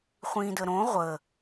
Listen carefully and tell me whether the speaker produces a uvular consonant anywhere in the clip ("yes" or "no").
yes